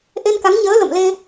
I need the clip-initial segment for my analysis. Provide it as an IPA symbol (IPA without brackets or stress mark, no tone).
ʔ